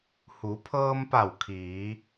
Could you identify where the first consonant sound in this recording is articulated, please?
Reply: glottal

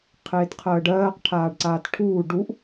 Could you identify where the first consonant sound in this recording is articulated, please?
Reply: uvular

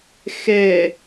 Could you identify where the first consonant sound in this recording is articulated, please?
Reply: velar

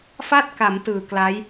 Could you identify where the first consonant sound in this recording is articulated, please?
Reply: labial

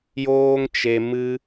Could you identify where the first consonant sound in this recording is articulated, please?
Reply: palatal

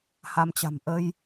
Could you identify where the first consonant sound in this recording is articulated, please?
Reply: glottal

